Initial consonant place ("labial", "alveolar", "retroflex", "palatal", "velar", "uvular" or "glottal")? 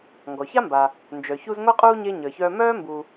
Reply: velar